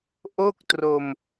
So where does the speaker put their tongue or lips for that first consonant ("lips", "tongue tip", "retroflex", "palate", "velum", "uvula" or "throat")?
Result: throat